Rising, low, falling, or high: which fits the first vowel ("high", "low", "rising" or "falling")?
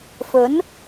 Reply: rising